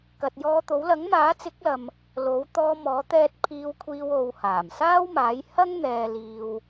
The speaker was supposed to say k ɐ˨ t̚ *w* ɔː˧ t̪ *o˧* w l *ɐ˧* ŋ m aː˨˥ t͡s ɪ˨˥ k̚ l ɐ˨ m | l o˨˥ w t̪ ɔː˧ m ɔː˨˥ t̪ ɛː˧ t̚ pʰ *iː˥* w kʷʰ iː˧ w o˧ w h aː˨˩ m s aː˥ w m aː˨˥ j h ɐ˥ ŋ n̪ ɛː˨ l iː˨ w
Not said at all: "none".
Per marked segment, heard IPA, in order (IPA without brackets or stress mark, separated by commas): j, o˨˥, ɐ˨˥, iː˧